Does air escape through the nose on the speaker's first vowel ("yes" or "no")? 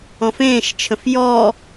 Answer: yes